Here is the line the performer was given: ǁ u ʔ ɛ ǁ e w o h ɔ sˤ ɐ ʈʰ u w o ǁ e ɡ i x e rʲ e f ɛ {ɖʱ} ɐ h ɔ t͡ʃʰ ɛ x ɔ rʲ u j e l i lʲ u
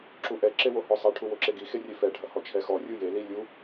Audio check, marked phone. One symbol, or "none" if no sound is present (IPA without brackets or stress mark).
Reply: ɖʱ